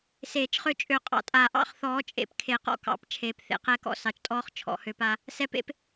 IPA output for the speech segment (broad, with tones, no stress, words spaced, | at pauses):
seː˨˩˦t͡ʃχø˦ t͡ʃʼø˨˦qʼɑ̰˨tʼa˨˦ ʔɑ̰˥˨χθɔː˨˦ t͡ʃʼḛ˨pkʰe˨˩˦qɔ̰˨kɑ̰˨˩˦p t͡ʃʰeː˨p θḛ˦qɛː˦kɔ̰˥˨ sɑ˨˩˦t͡ʃtʼɔː˥˨χ t͡ʃʰɔ̰˨˩˦hø˨˦p a˨˦ | sɛ˨pḛ˨˦p